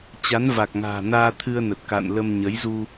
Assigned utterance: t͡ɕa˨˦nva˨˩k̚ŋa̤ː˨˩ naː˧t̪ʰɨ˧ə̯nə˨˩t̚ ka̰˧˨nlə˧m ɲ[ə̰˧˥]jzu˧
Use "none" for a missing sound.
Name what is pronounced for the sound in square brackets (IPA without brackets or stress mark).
ə˨˦